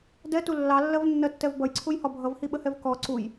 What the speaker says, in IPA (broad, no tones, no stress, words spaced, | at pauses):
dɛtu lːɑlːɜvnːɜtːɛv bʌjǀʰujhɒ bʱʌvhiɓəhɛv kɔ ǀuj